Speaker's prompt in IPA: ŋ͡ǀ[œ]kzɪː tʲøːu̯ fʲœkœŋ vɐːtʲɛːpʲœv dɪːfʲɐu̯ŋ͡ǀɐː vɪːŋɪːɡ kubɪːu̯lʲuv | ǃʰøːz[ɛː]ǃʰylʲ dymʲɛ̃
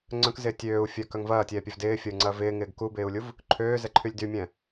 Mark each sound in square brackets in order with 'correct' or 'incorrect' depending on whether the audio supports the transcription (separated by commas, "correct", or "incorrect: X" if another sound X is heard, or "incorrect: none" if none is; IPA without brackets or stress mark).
incorrect: œ̃, incorrect: ɛ